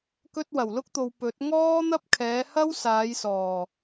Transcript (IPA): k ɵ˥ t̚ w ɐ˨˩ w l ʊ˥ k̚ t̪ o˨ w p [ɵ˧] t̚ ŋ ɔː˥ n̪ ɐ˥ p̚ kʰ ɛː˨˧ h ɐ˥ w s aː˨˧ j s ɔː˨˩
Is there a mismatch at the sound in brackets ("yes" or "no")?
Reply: yes